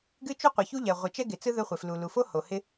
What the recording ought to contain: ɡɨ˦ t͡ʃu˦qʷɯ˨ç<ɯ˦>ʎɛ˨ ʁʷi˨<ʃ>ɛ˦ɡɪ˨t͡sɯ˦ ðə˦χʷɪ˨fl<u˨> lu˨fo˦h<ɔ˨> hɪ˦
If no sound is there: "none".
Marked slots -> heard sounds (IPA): u˦, t͡ʃ, u˨, o˨

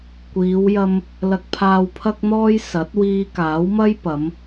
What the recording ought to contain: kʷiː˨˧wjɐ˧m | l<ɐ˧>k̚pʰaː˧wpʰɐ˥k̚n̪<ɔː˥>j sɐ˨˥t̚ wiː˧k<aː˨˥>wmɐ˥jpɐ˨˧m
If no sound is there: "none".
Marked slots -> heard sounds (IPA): ɐ˧, ɔː˥, aː˨˥

